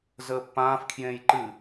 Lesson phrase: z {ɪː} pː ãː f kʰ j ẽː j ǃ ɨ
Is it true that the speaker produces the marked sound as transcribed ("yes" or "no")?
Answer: no